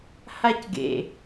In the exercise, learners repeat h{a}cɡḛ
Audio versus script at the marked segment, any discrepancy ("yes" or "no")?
no